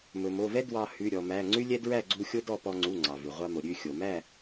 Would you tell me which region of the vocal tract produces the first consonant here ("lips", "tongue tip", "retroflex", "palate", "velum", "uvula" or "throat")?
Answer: lips